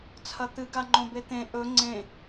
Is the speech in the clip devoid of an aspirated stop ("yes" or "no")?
no